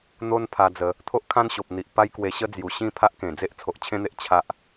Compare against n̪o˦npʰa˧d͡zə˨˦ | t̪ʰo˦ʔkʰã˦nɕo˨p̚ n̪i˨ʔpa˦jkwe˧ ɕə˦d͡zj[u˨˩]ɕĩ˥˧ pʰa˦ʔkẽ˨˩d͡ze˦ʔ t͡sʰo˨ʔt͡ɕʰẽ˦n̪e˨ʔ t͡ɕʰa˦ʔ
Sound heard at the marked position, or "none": u˨˩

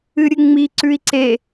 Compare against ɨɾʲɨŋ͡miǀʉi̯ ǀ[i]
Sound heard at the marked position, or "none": e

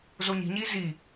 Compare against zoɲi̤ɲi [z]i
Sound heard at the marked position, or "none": z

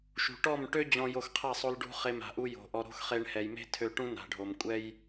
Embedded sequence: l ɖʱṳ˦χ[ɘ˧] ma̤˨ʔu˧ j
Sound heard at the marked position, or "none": e˧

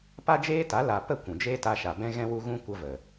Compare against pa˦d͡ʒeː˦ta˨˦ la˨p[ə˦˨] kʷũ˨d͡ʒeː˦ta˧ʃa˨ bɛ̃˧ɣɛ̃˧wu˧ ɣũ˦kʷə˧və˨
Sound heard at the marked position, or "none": ə˦˨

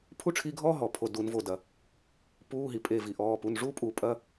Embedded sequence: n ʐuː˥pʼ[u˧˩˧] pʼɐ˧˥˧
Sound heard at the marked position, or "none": u˧˩˧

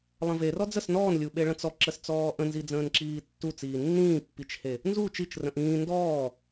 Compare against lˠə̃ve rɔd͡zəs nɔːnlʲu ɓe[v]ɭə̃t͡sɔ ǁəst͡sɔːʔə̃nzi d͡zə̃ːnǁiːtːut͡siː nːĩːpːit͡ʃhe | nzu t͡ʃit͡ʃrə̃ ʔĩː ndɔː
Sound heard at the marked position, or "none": none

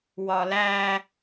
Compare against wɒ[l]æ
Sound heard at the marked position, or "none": l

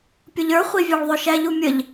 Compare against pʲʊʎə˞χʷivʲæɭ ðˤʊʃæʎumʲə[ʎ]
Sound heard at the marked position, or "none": ʎ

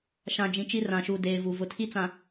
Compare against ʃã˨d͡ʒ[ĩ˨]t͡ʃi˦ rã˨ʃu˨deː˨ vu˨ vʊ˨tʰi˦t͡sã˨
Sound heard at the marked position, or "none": ĩ˨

